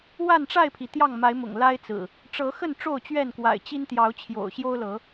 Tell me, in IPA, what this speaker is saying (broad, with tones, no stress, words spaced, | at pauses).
wa˥˨nʈ͡ʂa˥˨ɪ̯pʰi˩ t̪jɑ˥˨ŋma˨˦ɪ̯mʊ̰˨˩ŋ la˦ɪ̯t͡sɹ̩˨˩ | ʈ͡ʂɤ˨˦xə˥˨n ʈ͡ʂo˥˨ʊ̯t͡ɕɥɛ˥˨nkwa̰˨˩ɪ̯ t͡ɕi˦nt̪jɑ˨˦ʊ̯ t͡ɕʰjo̰˨˩ʊ̯ ɕjo˦ʊ̯lɤ˨˦